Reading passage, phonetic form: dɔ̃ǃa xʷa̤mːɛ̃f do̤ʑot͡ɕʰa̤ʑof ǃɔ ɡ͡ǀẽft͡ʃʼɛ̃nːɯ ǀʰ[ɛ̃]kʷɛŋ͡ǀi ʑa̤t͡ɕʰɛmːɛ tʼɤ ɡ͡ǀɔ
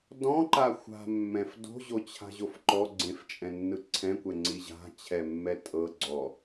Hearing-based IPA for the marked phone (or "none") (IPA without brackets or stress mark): ɛ̃